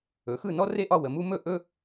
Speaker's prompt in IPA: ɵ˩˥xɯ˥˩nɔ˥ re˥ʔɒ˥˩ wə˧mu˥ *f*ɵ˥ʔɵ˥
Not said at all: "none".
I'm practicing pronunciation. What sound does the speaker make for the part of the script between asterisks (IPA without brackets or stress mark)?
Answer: m